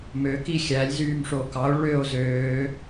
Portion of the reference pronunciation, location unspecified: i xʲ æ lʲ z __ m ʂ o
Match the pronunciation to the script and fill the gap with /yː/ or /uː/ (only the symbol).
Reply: yː